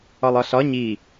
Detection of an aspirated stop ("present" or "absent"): absent